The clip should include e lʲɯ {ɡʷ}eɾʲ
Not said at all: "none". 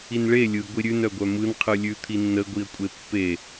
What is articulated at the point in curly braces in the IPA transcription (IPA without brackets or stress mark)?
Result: ɡʷ